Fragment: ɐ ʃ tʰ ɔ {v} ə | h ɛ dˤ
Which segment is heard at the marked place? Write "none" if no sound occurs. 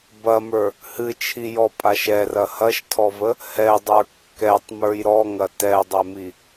v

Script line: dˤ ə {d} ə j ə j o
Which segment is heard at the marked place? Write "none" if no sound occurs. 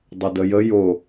d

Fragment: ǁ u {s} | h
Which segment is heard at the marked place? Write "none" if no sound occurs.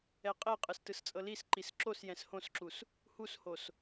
s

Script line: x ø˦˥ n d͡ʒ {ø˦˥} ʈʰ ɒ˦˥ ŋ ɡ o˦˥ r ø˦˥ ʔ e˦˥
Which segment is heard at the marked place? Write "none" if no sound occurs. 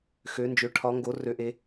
ø˦˥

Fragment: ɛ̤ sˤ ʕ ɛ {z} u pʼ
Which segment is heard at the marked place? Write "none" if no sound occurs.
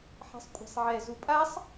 z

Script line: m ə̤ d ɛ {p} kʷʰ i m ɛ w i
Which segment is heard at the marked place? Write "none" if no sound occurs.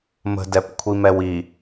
p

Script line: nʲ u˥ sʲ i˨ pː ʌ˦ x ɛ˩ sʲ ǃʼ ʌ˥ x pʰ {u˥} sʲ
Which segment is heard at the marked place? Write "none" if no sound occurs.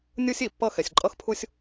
u˥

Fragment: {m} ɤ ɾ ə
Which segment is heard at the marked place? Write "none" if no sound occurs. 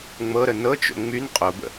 ŋ͡m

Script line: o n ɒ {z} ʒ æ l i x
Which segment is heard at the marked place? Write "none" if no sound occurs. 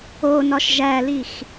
ʃ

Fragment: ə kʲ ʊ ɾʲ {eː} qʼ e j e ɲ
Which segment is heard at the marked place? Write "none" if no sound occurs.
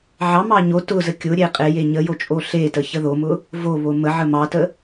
e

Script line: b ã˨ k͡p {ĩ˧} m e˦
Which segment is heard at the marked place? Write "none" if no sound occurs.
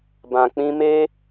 ĩ˧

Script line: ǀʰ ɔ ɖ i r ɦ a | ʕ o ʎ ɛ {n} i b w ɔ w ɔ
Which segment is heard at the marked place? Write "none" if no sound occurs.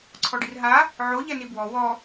n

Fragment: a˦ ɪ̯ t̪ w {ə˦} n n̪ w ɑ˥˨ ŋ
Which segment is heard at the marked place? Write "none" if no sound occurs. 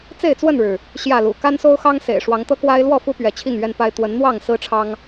ə˨˦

